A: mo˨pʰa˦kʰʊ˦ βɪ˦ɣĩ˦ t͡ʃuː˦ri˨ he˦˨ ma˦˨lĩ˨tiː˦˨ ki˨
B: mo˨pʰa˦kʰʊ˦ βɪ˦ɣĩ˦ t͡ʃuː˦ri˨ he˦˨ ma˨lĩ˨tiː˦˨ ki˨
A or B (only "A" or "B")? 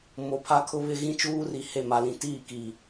B